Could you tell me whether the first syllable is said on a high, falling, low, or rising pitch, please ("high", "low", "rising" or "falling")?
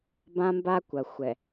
high